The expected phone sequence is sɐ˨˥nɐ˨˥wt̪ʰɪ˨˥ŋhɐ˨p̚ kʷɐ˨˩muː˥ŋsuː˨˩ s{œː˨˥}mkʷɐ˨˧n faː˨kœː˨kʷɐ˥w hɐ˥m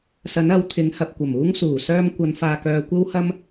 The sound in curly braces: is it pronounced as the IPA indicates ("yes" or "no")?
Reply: no